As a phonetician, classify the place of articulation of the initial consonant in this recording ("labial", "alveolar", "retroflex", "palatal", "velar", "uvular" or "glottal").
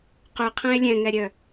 uvular